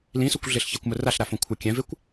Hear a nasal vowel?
yes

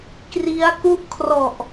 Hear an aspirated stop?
yes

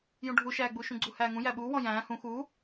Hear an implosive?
yes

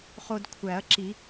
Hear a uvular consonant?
yes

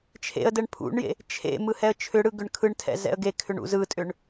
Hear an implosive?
no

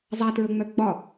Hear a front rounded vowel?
yes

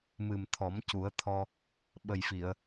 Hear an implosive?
yes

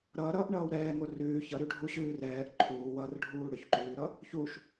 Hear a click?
yes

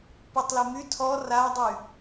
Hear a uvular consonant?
no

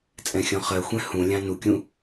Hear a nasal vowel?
yes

